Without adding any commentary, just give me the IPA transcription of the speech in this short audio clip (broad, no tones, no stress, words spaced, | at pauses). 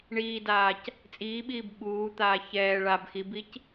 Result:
ɳiːdaːc | t͡sʼiːɓiːb ɓuːt̪aː çɛː ɭab xibic